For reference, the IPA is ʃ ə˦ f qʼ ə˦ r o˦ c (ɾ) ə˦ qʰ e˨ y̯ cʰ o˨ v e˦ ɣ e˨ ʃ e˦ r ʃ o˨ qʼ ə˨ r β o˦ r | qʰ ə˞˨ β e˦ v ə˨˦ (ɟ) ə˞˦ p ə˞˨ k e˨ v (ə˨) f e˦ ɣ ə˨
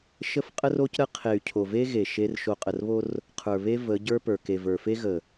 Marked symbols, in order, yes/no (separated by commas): yes, yes, no